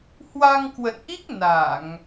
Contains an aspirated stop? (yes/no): no